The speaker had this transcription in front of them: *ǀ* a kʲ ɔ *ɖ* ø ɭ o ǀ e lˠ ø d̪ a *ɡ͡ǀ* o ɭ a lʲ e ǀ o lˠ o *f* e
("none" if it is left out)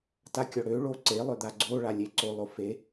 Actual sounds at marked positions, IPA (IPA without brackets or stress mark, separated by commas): t, ɽ, ɡ͡ǀ, f